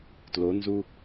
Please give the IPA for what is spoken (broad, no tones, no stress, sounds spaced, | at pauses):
t l o n z u